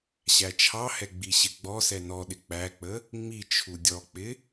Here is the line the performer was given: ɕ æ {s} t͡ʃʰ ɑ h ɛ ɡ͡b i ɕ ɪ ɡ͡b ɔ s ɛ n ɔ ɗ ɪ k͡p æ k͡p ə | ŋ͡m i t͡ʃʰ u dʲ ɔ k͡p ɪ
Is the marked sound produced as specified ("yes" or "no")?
no